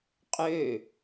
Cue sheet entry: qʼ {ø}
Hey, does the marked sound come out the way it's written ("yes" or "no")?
yes